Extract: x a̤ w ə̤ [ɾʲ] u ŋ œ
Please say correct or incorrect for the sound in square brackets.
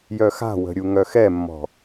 correct